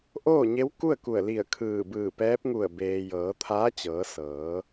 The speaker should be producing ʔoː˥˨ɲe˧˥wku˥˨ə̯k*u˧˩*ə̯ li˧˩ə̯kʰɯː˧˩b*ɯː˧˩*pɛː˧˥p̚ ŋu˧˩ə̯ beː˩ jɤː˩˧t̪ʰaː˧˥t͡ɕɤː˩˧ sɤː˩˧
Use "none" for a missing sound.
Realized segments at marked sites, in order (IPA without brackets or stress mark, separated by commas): u˧˩, ɯː˧˩